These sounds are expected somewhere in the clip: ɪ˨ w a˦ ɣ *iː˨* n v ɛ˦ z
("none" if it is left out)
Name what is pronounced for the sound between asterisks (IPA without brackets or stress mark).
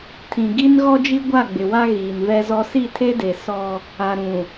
iː˨